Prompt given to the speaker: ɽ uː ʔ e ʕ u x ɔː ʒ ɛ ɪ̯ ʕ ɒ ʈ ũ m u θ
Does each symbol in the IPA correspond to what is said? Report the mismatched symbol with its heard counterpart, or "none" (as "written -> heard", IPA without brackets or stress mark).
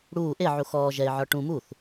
none